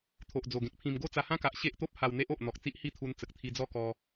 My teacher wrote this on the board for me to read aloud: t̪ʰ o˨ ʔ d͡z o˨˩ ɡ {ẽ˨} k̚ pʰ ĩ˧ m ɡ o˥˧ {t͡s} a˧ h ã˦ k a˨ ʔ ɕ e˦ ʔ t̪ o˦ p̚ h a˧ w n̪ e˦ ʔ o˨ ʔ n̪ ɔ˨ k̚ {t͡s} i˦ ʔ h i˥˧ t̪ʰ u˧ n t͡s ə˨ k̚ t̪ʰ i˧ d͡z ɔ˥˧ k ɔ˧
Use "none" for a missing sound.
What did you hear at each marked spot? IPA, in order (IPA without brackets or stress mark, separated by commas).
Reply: ẽ˨, t͡s, t͡s